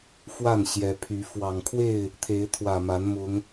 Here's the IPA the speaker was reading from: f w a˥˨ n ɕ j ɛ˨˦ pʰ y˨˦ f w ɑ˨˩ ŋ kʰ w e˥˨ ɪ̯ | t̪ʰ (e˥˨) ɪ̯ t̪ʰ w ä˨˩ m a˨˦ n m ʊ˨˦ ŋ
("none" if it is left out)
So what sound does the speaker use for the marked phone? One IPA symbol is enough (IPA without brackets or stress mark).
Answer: e˨˦